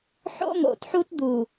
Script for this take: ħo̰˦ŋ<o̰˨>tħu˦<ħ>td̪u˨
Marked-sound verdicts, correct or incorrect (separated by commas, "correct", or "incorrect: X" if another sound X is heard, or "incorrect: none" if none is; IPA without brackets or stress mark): correct, incorrect: none